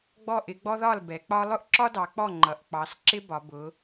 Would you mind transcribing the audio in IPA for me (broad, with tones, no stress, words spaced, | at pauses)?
ɡ͡bɔ˥˩ʔɪ˦ ɡ͡bɔ˦ðɒ˥˩lbɛ˩˧k͡pɒ˦ lˠʊ˦ʔǁɒ˦dɑ˩˧ k͡pɔ˥˩ŋ͡ǃʌ˩˧ʔ k͡pɑ˩˧sǁɪ˦bɒ˩˧bʊ˩˧